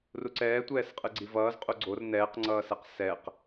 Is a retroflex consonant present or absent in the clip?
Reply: absent